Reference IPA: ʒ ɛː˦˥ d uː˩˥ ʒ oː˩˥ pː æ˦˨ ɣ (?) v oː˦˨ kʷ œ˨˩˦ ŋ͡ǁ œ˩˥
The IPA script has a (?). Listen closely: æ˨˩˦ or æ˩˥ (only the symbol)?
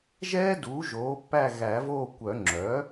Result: æ˨˩˦